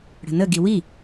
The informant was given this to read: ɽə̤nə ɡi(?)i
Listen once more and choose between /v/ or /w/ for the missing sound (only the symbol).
w